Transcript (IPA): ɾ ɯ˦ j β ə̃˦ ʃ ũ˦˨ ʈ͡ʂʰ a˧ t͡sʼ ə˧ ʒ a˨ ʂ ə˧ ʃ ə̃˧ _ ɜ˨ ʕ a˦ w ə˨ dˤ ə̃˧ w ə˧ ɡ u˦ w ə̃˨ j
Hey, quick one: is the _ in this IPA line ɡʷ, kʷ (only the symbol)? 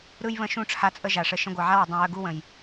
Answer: ɡʷ